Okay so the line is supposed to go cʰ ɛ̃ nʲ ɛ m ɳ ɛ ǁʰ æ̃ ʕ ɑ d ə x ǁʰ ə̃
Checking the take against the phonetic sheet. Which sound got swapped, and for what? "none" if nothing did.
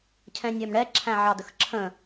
none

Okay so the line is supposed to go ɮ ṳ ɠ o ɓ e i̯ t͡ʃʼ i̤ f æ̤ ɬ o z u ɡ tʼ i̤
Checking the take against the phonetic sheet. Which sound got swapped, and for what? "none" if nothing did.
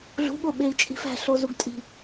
none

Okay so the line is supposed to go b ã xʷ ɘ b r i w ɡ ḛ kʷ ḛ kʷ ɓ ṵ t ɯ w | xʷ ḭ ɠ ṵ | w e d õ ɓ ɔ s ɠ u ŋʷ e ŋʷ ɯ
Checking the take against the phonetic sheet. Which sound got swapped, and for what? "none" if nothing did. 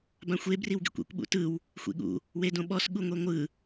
ɘ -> e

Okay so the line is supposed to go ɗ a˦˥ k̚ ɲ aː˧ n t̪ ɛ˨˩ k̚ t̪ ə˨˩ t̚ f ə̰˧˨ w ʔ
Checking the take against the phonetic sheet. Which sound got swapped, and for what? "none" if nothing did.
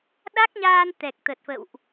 none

